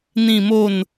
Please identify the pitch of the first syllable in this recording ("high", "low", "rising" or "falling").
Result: falling